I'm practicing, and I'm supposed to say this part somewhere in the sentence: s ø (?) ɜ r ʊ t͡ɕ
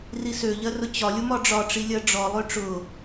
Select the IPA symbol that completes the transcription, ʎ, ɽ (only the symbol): ʎ